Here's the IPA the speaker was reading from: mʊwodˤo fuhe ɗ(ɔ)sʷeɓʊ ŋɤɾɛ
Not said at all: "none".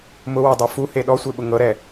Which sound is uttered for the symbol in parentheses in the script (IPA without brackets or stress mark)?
ɔ